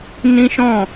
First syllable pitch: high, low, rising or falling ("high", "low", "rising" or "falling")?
high